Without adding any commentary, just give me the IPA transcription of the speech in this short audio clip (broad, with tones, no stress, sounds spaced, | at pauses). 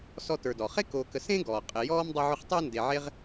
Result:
s ɔ˦ t ə˞˨ d ɔ˩ χ e˥ k oː˨ k ə˨ s ẽ˥ ɡ ɔː˩ qʼ ɪ˨ j ɔː˥ m dˤ ɵ˦ ʕ ɵ˦ χ tˤ ɪː˥ n d e˨ ʕ e˥ ʁ